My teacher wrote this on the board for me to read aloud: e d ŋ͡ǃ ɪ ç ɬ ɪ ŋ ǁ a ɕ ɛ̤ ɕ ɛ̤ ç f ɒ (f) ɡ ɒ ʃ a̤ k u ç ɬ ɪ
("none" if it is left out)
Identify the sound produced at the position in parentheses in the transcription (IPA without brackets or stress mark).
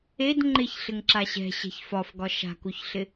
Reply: f